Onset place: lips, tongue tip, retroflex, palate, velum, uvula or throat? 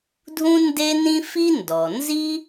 tongue tip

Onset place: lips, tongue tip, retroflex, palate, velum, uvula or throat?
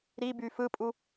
tongue tip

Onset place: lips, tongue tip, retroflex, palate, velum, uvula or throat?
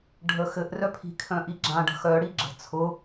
retroflex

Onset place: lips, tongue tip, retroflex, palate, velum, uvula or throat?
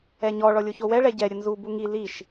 palate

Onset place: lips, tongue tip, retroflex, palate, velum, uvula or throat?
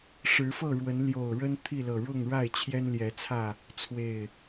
retroflex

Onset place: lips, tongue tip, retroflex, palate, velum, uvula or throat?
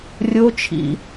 tongue tip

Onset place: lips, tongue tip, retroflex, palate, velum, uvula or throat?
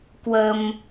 velum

